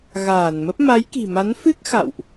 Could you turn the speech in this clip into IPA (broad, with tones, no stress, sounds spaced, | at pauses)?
ɣ aː˧˩ n m ə˦˥ p̚ m a˨˦ j k i̤˨˩ m a˨˦ n f ɨ˦˥ k̚ x a̰˧˨ w ʔ